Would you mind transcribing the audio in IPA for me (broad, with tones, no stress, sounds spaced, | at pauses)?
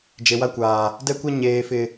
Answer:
d͡ʒ e˨ w a˦ kʷ aː˨ | d ɛ˦ kʷ ɛ˦ ɲ eː˨ f ɪ˨